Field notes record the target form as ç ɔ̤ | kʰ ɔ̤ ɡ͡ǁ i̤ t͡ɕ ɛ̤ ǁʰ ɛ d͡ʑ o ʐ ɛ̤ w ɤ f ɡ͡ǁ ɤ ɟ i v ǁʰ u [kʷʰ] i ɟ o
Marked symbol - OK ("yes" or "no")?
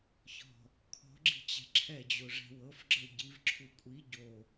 no